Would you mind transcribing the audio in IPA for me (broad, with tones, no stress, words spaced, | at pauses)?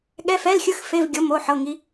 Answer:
ɠɛ˧˥˧fɛ˧˥˧lxʲɯ˧˥˧xfe˧˥˧v ɡʲo˧˥˧mo˧˥˧ħɤ˧˥˧ŋi˦˥